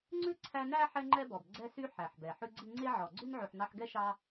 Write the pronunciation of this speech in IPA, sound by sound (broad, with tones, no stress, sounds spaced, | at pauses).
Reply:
ŋ͡ǀ ʉ˥ ǀʰ æ˦ n æ˥ ħ ɛ˦ ŋ͡ǃ ɛ˦ b ɔ˩ b ɡ͡ǀ ɛ˦ s y˦ ħ æ˩ ħ b ɛ˩ ħ ʉ˦ ɡ͡ǀ i˦ ŋ͡ǀ e˦ ʕ ɔ˩ ɡ͡ǀ ʉ˥ n ʕ ʉ˨ ħ n ɑ˦ ħ ɡ ɛ˥ ʃ ɑ˦